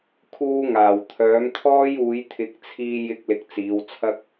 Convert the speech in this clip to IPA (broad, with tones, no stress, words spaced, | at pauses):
kʰuː˧ŋaː˨˩wt̪ʰœː˨˥mt̪ʰɔː˥j uː˨˧jt̪ʰɪ˨˥k̚t͡sʰiː˧ jɪ˧k̚lɪ˨k̚ t͡siː˨˧wt͡sʰɐ˥k̚